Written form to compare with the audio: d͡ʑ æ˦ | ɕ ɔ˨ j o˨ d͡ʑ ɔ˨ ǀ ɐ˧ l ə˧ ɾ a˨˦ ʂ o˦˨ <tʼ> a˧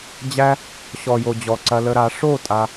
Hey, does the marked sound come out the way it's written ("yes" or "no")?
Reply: yes